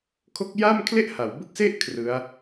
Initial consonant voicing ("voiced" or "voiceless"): voiceless